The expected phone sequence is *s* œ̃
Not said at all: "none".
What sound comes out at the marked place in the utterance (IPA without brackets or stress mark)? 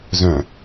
z